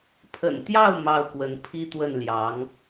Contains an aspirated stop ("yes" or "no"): yes